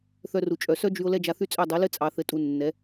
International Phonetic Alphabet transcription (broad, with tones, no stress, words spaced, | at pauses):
θœ˧ru˨ t͡ʃʼœ˨sœ˦d͡ʒy˧o̯ lɛ˦d͡ʒa˧θy˦t͡sʼœ˦˨ dˤɘ˨˦lɘ˦t͡sʼɑ˨ θɘ˨tʼu˨ nːɛ˨˦